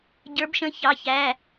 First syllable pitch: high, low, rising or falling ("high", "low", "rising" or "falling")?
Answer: rising